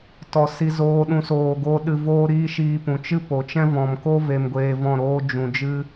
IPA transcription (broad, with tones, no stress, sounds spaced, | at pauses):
t ɔ˧ s i˦ z oː˦ ɗ ũ˦ s oː˧ ɡ oː˦ ɗ ɨ˧ v oː˦ ɾ iː˦ ʃ iː˧ p ũ˨ t͡ʃ ɨ˦ p o˨ t͡ʃ ɛ̃˦ v ɔ̃˨ m k o˦ v e˧ m ɡʷ eː˧ v ɔ̃˦˨ ɾ oː˦ d͡ʒ ũ˨ d͡ʒ ɨ˦